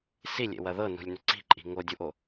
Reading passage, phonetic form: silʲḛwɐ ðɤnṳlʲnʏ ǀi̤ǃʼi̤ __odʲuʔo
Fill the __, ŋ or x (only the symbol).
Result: ŋ